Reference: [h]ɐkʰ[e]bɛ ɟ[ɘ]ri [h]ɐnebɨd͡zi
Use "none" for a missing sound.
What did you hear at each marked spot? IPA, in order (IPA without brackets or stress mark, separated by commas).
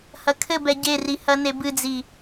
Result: h, ɘ, e, h